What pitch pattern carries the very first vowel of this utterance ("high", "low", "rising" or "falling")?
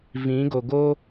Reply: rising